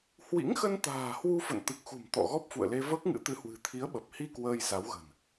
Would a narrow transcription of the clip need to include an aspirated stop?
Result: yes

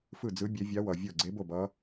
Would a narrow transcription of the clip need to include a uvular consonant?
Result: no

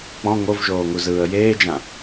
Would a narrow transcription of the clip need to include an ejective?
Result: no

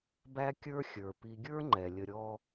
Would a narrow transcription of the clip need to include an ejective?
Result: no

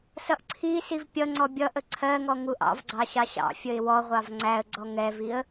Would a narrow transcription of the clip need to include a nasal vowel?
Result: no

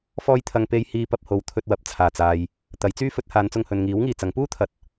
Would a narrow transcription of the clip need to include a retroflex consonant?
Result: no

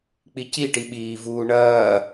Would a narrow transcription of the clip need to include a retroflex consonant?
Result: yes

